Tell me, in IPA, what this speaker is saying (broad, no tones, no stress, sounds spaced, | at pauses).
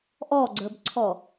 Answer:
ʔ ɔ ɡ͡ǀ ə˞ b ǀʰ ɔ